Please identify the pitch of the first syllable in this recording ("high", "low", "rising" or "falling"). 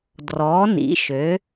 rising